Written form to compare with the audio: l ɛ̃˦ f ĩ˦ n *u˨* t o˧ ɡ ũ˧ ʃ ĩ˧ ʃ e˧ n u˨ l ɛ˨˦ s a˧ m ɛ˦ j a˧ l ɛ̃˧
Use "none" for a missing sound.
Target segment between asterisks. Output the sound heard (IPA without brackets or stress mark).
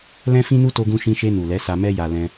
u˦